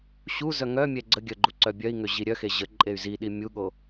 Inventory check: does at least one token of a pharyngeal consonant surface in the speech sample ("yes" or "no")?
no